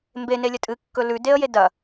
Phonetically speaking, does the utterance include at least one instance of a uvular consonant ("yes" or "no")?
no